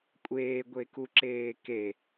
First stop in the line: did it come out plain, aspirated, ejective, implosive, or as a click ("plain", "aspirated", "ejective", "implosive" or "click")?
ejective